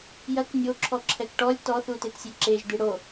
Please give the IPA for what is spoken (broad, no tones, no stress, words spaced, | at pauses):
jɐk nʲoǁʰɔ ǁʰɛkʈɔlʲ tɔθutetsʲe ǁeʒ d̪iɽo